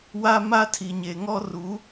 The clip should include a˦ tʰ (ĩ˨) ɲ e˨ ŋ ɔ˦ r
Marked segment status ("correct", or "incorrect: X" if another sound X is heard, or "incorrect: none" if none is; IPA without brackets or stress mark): incorrect: i˨